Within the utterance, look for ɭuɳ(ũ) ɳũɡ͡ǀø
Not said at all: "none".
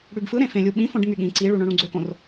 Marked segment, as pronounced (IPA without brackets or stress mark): õ